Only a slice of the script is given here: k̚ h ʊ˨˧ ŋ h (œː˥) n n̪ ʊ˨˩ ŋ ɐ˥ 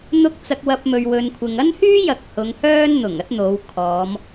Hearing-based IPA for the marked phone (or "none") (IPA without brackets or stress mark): œː˥